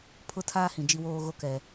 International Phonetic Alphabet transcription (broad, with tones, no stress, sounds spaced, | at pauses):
pʰ ʊ˦˨ tʰ aː˦ h ĩ˨ d͡ʒ i˦ w oː˦ ɣ o˦ k ɛ˨